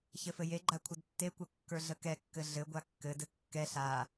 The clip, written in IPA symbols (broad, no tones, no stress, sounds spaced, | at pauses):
ç ɘ f ɘ j e ɡ͡ǃ a kʷʰ ə d tː e kʷ ə kː ə˞ ɮ ə k ɛ kː ɘ ɮ ɘ ɡʷ a kː ɘ d ɘ kː ɛ ɬ a